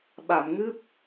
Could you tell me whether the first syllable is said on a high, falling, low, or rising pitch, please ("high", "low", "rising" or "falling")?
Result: low